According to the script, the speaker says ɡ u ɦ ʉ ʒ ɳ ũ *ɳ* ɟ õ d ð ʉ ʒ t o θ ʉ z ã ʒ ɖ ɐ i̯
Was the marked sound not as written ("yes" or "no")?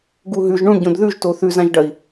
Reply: no